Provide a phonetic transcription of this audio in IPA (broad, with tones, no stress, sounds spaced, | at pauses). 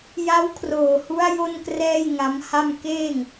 j a˦˥ w kʰ r oː˨˩ h u˦˥ a̯ j o˥˩ n k r ɛː˥˩ j ŋ a˦˥ m h a˥˩ m k eː˥˩ ŋ